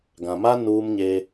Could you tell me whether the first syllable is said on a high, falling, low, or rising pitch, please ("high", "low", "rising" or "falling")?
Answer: low